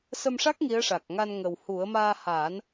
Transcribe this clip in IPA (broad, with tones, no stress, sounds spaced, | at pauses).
s ə˧ m ʂ a˦˥ k̚ ŋ i˧˥ ə̯ ʂ a˨˩ k̚ ŋ a˧ n ŋ ə˨˩ w h u˨˩˦ ə̯ m aː˧ h aː˨˩˦ n